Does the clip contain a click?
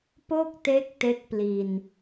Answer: no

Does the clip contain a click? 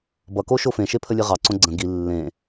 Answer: yes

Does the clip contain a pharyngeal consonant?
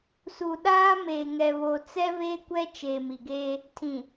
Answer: no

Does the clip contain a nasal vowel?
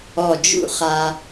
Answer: no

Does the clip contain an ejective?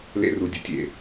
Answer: no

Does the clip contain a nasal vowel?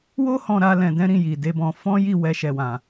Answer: yes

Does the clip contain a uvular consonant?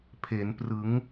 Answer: no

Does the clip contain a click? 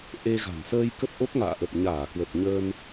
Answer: no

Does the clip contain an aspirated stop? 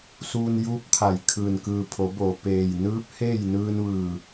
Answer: yes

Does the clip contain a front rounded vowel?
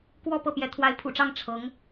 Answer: no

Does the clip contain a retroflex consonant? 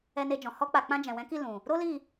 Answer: no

